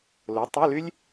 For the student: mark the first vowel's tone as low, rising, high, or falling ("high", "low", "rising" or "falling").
rising